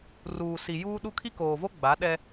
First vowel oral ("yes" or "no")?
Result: yes